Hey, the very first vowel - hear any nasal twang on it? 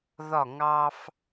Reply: no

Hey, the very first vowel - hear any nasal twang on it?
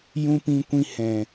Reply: yes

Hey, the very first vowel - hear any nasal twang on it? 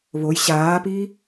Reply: no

